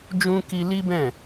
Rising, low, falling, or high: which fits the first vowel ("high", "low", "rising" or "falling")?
high